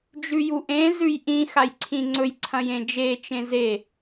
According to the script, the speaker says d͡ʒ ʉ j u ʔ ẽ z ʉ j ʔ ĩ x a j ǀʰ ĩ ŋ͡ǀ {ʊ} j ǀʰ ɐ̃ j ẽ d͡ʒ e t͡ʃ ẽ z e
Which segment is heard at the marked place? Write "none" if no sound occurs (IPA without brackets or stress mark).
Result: ɵ